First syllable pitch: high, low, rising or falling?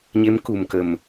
rising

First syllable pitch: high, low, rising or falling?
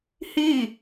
falling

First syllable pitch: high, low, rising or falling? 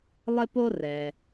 high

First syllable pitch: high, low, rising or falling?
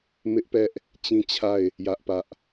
high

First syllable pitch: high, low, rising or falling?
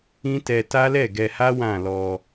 high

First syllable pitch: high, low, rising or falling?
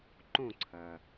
falling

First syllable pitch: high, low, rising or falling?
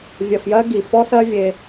low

